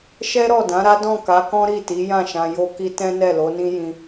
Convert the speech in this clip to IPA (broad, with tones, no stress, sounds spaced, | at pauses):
ʃ ɛ˦ ɾ ɔ˦˨ d ã˨˦ ɾ a˦ d ɔ̃˦˨ k a˨˦ k ɔ̃˦ ɾ i˦˨ t i˨˦ j ã˦˨ ʃ ã˧ j o˧ k i˧ t ɛ̃˦ n ɛ˦˨ l o˨˦ n ĩ˦ j ĩ˧